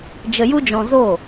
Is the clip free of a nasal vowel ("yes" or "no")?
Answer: no